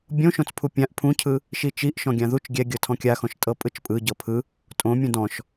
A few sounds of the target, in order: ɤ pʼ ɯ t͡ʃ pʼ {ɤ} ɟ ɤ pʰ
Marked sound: incorrect: ɯ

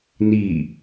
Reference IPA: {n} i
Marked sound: correct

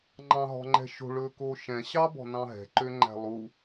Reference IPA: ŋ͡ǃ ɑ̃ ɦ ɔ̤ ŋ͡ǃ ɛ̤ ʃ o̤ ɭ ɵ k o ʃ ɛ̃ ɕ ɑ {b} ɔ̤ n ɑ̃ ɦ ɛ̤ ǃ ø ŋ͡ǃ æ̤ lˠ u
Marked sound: correct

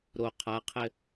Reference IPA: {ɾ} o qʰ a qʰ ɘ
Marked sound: correct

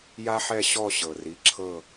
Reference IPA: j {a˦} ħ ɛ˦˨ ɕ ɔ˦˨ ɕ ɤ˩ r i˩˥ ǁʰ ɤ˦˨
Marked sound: correct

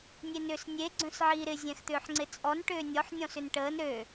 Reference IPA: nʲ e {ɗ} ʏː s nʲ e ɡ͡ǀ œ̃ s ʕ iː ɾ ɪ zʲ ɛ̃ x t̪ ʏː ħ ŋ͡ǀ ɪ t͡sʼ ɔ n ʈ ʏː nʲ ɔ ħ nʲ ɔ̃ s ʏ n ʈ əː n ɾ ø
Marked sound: incorrect: n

